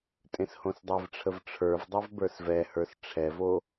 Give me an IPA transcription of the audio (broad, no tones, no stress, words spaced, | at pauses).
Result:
tʼẽshõsdˤɛvʈ͡ʂʰəv ʈ͡ʂʰə˞vdˤɛv bə˞svɛhə˞s ʈ͡ʂʰɛvo